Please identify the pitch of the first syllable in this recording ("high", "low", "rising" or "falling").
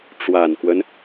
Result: low